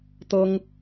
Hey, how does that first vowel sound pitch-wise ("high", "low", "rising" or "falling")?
high